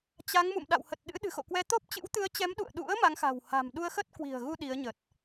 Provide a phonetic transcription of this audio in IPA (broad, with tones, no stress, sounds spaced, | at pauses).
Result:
t͡ɕ a˨˦ ŋ m ṵ˧˨ m ɗ a̰˧˨ w h ə˨˩ t̚ ɗ ɨ̰˧˥ ɗ ɨ̤˨˩ x o̰˧˨ k w ɛ˨˦ t̪ o˦˥ p̚ t͡ɕ ɨ̰˧˥ w t̪ ɨ˨˦ ə̯ t͡ɕ ɛ˨˦ m ɗ ṵ˧˨ ə̯ ɗ ṵ˧˥ ə̯ m a˨˦ ŋ x a̤˨˩ w h a̤˨˩ m ɗ u˧ ə̯ x ə˦˥ t̚ k w i̤˨˩ ə̯ ɣ u˧ ɗ i˨˦ ə̯ ɲ ə˨˩ t̚